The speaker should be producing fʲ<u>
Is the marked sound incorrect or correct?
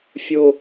incorrect